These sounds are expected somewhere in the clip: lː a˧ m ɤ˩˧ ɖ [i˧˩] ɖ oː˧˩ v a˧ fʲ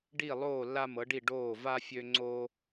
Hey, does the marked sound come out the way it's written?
yes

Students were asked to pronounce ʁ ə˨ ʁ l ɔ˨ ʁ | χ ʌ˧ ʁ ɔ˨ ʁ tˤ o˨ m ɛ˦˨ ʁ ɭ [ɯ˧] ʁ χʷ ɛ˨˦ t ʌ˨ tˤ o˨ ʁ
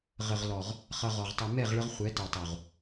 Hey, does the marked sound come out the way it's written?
no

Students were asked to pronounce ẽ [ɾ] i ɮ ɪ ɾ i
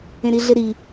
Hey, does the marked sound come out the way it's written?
yes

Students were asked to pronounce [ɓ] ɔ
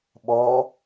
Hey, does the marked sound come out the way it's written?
yes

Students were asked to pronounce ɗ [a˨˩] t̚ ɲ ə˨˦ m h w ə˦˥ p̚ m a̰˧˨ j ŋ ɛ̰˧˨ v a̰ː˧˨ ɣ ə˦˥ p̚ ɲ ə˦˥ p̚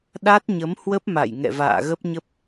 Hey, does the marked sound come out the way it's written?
no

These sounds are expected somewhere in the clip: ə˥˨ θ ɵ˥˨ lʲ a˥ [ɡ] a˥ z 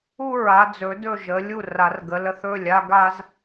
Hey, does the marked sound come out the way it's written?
yes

